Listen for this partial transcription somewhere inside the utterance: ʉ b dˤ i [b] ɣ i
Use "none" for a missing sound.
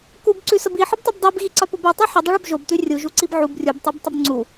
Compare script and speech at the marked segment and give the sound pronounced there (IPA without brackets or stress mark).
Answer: b